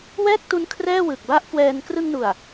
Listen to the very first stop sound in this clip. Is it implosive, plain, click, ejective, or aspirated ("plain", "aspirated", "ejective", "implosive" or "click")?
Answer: plain